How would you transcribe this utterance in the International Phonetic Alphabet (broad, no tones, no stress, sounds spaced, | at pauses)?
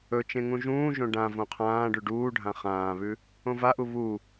ɵ t͡ʃ ẽ ŋ ũ ʒ ũː ʒ õ ɖ ã v õ qʰ ãː ɖ ʉ ɖ uː ɖʱ ã χ ãː β ʉ | õ v a ʔ u β u